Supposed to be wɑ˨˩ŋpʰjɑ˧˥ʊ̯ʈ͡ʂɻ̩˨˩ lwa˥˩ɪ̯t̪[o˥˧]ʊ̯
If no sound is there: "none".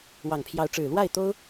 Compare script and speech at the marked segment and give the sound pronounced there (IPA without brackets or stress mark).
o˥